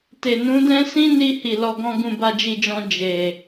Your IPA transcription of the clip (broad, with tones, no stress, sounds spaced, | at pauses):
t e˨ n ũ˨˦ d ɛ̃˦ s ĩ˦ n i˧ h i˨ l ɔ˧ ɡ ɔ̃˦ ɡ ũ˧ b a˧ d͡ʒ i˧ d͡ʒ ɔ̃˧ d͡ʒ e˨